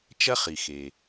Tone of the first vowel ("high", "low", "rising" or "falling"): high